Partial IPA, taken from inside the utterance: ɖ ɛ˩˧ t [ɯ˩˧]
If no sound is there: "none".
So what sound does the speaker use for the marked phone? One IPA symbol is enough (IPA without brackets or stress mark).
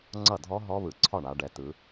ɯ˩˧